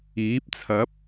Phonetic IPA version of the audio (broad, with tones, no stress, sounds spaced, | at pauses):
iː˨˥ p̚ t͡sʰ ɐ˨˥ p̚